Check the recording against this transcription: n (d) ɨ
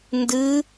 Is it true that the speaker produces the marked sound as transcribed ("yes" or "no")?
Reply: yes